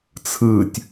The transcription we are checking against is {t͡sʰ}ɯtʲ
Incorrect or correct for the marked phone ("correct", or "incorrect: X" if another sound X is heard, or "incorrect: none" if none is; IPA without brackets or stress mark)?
correct